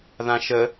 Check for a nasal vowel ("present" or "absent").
present